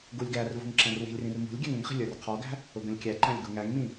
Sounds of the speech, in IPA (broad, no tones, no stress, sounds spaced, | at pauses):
ɡ u lʲ ɡ æ r v ṳ ŋ ǁ æ̃ r w i̤ lʲ r ĩ r m ṳ lʲ ɡʲ æ ŋ ə̃ ŋ χ i̤ lʲ ə˞ r qʰ ɔ ɡ æ̤ | ʊ ɡ ə̃ lʲ kʲ æ ǃ æ̃ lʲ ɡ u ŋ æ ŋ m ĩ